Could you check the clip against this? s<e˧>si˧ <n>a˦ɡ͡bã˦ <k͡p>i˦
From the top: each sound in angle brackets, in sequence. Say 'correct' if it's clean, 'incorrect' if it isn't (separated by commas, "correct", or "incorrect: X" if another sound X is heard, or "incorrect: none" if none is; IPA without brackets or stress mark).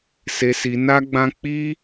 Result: correct, correct, correct